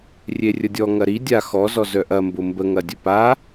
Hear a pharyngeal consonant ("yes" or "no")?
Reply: no